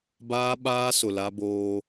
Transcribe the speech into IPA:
b aː˦ ɓ aː˦ s ʊ˨ l a˦ b oː˦

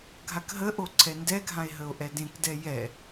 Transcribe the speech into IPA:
ɡʱ a k ɦ ə ʔ o ǀʰ ɛ n d ɛ ɡʱ ã e̯ ɦ ə o̯ ʔ ɛ d ẽ k d ɛ j ɛ

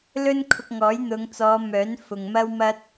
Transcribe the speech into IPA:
l ɵ˥ n kʰ ʊ˧ k̚ ŋ ɔː˨˥ j n̪ ʊ˨˧ ŋ t͡s ɔː˨˧ m œː˨˥ n f ʊ˨ ŋ m ɐ˥ w m ɐ˥ t̚

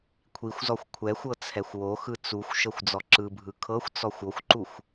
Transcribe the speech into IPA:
kʷʰ i xʷ z ɔ xʷ kʷʰ ɛ xʷ ɤ t͡sʰ ɛ xʷ w o x ɯ t͡s u xʷ ʃ ɤ xʷ d͡z ɔ ǁ ɯ bʱ ɯ kʰ ɤ xʷ t͡s ɔ xʷ o xʷ ǃ u xʷ

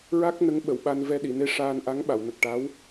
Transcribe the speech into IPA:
ɹ a˦˥ k̚ n ə˧˥ ŋ ɓ ə˨˩˨ w ɓ a˧ n v ɛ˧ ɗ i˨˩˨ n e˧ ʂ aː˧ n ʔ a˧˥ ŋ ɓ a˨˩˨ w n ə˨˩ k̚ ʈ a˧˥ w

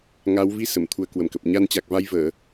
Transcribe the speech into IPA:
ŋ a˨˦ w v i˧ s ə˧˩ m t̪ʰ u˨˦ ə̯ k w ə˧˩ m k ə˨˩ p̚ ɲ a˧ n t͡ɕ a˨˩ k̚ v a˧ j v əː˧˩˨

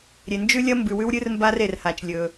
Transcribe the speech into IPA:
ɾʲ e˩ n d͡ʒ ʉ˦ lʲ ɐ˦ m b ʉ˩ w ʉ˦ w ɾʲ ɨ˦ r m b a˦ r e˩ r h a˩ t͡ʃ lʲ ɵ˩

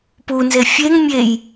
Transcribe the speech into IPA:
p u n z e fʲ e ŋ mʲ e j

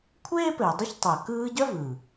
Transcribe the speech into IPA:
kʷʰ eː˥ p ɘː˩ dˤ ʏ˥ ç tˤ œ˩ k ɯː˥ ɟ œ˥ v ɯː˩

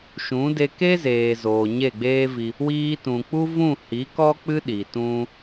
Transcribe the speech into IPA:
ʃ ũ˨˦ d e˧ k e˦ z eː˨ z oː˨ ɲ e˦˨ ɡ͡b eː˦ v i˧ | w iː˧ t ũ˨ k͡p u˦ v ũ˦˨ h i˨˦ k ɔ˦ k͡p ɨ˦ ɗ i˨ t ũ˦

